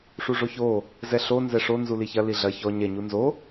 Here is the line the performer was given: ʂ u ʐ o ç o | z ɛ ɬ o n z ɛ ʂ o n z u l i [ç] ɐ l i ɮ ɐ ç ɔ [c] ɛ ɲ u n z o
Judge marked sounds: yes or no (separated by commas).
yes, no